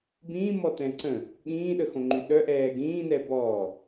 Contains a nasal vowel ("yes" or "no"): yes